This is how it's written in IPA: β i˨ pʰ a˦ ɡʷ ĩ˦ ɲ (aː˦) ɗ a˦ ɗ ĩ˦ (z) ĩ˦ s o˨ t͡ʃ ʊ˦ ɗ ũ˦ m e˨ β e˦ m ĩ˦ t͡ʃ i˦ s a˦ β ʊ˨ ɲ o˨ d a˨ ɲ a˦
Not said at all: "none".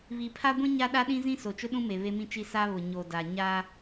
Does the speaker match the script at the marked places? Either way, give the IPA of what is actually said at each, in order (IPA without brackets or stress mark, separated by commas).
a˦, z